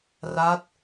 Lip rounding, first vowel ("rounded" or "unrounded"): unrounded